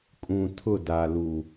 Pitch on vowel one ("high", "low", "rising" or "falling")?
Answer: low